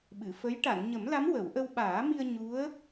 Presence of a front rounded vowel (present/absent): absent